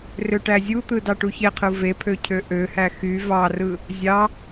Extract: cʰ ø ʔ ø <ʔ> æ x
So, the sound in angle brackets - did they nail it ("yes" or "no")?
no